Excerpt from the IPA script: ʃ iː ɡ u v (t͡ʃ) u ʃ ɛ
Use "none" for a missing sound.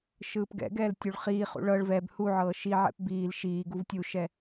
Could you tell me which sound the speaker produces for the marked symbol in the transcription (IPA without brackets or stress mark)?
tʲ